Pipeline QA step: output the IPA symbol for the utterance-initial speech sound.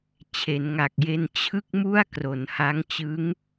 t͡ɕʰ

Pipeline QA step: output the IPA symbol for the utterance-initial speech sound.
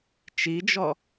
t͡ʃ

